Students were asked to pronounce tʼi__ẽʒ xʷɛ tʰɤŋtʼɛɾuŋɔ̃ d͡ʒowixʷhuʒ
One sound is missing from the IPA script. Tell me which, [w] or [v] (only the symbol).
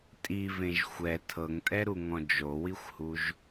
v